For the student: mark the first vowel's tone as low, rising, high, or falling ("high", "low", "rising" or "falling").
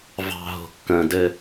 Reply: low